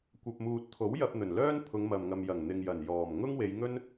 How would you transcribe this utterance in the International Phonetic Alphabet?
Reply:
kʷ ɐ˨ p̚ m uː˨ t̚ t̪ʰ o˨˥ w j ɐ˧ p̚ n̪ ɵ˨˩ n l œː˥ n pʰ ʊ˨˧ ŋ m ɐ˨ m ŋ ɐ˨ m j ɐ˨˩ ŋ n̪ ɪ˨ ŋ j ɐ˨˩ n j ɔː˨˩ m ŋ ʊ˥ ŋ w e˨˧ j ŋ ɵ˥ n

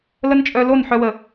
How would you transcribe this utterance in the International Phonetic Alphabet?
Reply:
l ə˦ n t͡ʃʼ œ˧ l o˦˨ n ħ œ˧ w ə˨

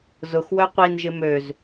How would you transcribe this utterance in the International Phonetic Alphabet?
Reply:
z ʊ x w œ qʷ i n ʒ ɪ m ø z

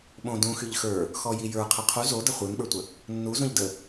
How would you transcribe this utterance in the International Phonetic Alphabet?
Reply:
ɓ õ d ũ x y ʎ x ə˞ | x ɔ j i j ə˞ qʰ ɛ qʰ u z o d ə χʷ ɯ n ɓ ə˞ tʷ ə | nː u z ũ ʎ d ə

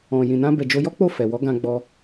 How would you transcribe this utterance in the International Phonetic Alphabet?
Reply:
ɔ̃˨ j ĩ˨ n ã˧ b ɛ˨ d͡ʒ o˧ j ɔ˦ k͡p o˦˨ f ɛ˨ w ɔ˨˦ ɡ ã˧ ɡ͡b ɔ˧

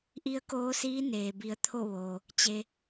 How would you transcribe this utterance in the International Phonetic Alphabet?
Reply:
ʔ i˧˥ ə̯ k oː˧˥ s iː˧˥ n eː˩ b i˩˧ ə̯ t̪ʰ o˥˨ ʋ oː˩ | t͡ɕ e˧

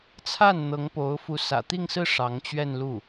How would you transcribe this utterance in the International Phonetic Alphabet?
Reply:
t͡sʰ a˥˩ n n̪ ɤ˧˥ ŋ p o˧˥ ʊ̯ f u˧˥ s ä̰˨˩ t̪ i˥˧ ŋ s ɹ̩˥˩ ʂ ɑ˧˥ ŋ t͡ɕ ɥ ɛ˥˧ n l u˥˩

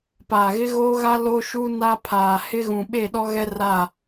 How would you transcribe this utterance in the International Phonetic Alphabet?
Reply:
p aː˨ ɣ ɪ˦ ɣ oː˦ ɣ a˦ l o˦ ʃ u˦ n a˦ pʰ aː˨ h ɪ˦ ɣ ũ˨ ɓ e˦˨ ɗ ɔ˦ ɣ ɛ˦ r a˦˨

